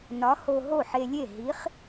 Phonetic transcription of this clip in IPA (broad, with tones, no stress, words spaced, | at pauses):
nɒ˨˥ho˧ ɦo˥˩ħe˧lʲe˥˩ ɦi˨˥χ